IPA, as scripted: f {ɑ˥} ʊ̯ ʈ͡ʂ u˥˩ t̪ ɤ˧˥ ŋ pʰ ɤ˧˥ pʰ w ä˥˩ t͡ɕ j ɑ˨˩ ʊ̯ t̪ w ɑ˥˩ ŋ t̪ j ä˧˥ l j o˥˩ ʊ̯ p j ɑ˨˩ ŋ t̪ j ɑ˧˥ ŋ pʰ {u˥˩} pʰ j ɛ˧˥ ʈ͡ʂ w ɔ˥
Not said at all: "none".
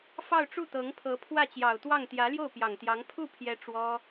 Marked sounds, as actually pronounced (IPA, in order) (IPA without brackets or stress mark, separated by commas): ɑ˥˧, u˥˩